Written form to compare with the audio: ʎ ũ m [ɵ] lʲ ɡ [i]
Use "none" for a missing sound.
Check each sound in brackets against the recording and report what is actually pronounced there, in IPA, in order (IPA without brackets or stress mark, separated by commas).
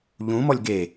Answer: ɔ, e